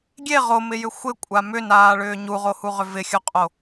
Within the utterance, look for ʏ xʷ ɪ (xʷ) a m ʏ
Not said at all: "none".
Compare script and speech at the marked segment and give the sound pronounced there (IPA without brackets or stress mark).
kʷʼ